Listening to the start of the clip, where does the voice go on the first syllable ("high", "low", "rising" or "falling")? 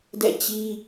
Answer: falling